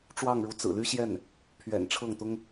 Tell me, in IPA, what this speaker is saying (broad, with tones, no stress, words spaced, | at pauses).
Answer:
ʈ͡ʂwɑ˥˩ŋɻu˧˥t͡sɹ̩˨˩ ly˥ɕjɛ˥˩n | pʰɥɛ̰˨˩nʈ͡ʂʰɤ˥˩ŋt̪ʊ˥ŋ